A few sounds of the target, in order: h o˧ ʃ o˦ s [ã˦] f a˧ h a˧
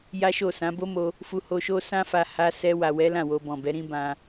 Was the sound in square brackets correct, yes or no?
yes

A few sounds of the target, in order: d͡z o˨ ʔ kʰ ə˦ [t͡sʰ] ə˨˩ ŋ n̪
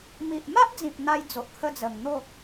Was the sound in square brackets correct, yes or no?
no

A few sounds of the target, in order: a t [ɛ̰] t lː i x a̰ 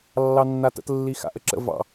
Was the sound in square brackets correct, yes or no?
no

